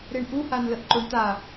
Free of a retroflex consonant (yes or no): no